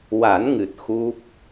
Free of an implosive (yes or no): yes